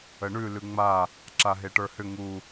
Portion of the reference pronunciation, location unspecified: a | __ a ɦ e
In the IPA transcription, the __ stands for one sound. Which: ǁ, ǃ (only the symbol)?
ǁ